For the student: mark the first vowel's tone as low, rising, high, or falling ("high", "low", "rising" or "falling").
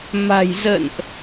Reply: low